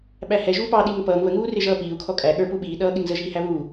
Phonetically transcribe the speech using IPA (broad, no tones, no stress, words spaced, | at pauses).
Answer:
ɓæhɛ ʒuːpɑ ɗiːŋəpʌːŋ βəŋuː rɪʒʌːpiːu̯ kʰɔkʼæ ɠə˞pu ɓiːɗʌː ɠɪŋzəʒiː hæβuː